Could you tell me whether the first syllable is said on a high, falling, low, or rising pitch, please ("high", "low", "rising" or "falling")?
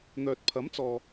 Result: low